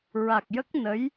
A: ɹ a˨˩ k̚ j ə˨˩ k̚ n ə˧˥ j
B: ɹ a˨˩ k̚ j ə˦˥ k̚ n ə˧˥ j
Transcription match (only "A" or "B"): B